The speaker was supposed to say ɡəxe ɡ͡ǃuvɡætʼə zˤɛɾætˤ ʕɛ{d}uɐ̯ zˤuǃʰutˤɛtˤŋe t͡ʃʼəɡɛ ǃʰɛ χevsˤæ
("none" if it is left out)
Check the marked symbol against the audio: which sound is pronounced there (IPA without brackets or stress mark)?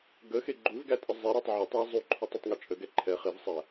tˤ